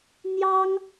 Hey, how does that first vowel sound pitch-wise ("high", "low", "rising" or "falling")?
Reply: high